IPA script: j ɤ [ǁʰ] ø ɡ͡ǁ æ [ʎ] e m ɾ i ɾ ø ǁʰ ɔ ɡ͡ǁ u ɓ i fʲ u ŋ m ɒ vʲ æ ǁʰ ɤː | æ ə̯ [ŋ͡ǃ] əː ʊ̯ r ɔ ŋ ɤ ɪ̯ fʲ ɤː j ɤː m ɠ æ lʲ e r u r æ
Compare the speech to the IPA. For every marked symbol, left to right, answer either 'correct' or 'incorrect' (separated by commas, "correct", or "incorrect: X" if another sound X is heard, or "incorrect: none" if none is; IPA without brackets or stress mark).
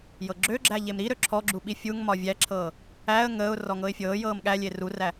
incorrect: ɡ͡ǁ, correct, incorrect: ŋ